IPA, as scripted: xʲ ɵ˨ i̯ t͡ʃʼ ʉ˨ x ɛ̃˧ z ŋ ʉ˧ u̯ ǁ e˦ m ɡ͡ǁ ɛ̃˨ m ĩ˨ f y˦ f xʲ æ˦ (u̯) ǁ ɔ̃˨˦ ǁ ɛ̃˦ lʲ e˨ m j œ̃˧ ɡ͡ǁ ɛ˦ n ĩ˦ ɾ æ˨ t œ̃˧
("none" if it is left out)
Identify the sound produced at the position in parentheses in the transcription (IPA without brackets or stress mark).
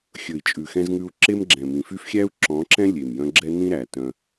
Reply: u̯